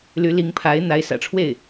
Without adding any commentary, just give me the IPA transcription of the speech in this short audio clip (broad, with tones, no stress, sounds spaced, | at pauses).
l y˧˥ l i˧˥ ŋ pʰ a˧˥ ɪ̯ n̪ a˧˥ ɪ̯ s ä̰˨˩ ʈ͡ʂʰ w e˥˩ ɪ̯